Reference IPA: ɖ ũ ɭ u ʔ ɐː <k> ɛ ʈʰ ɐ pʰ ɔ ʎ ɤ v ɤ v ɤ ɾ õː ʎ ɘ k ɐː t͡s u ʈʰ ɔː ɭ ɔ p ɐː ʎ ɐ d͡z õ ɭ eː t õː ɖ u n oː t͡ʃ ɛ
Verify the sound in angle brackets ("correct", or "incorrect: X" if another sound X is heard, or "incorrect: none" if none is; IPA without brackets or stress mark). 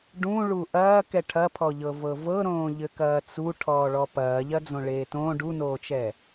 correct